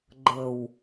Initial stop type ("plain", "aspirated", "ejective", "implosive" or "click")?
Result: click